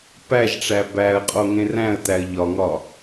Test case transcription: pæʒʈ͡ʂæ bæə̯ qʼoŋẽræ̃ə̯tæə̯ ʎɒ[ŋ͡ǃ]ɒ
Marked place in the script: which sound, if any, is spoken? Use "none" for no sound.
ŋ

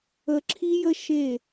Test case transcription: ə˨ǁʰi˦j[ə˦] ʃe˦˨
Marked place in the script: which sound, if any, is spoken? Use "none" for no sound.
ə˦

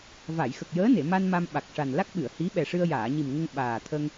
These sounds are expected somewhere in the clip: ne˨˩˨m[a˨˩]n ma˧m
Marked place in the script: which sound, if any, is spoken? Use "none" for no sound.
a˧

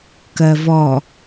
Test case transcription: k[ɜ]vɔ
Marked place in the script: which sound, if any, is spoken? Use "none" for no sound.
ɜ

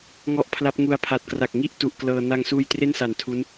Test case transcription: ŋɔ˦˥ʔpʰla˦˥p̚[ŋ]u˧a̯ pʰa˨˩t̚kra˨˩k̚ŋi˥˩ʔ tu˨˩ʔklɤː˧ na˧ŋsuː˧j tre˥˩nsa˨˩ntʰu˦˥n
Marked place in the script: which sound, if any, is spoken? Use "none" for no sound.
ŋ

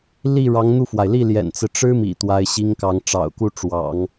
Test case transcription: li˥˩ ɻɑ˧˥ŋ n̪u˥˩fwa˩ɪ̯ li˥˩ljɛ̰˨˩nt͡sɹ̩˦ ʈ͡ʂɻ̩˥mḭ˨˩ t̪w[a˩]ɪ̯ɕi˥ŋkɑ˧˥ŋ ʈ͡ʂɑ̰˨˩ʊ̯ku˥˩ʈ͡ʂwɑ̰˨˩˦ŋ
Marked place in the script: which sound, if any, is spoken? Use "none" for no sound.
a˧˥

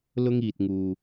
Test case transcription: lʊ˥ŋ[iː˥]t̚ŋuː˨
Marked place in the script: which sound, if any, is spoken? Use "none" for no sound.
iː˨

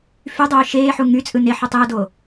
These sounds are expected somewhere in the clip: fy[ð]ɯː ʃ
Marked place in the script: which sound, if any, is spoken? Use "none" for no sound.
dˤ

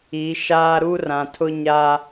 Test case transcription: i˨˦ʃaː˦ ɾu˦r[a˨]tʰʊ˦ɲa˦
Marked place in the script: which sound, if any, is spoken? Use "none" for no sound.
ã˨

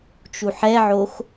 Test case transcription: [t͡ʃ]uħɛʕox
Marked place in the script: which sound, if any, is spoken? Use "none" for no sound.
t͡ʃ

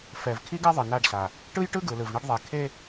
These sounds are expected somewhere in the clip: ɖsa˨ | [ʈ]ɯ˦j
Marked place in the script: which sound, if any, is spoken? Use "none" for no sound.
ʈ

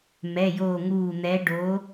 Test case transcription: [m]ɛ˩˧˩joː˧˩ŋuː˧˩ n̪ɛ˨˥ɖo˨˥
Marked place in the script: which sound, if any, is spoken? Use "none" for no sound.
m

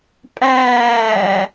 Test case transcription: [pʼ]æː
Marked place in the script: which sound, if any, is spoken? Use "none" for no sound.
pʼ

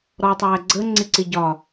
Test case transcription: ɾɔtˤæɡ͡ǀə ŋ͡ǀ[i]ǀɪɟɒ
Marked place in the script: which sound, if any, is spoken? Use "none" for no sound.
ɪ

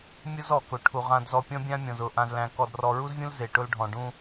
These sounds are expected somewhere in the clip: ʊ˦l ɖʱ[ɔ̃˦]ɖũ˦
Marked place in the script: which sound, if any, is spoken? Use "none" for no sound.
ɔ̃˨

